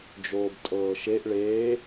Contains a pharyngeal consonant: no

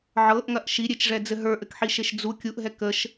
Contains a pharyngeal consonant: yes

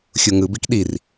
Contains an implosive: yes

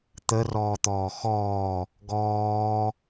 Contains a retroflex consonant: no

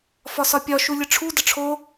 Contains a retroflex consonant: yes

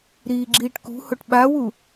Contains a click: yes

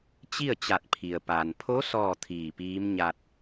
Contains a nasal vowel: no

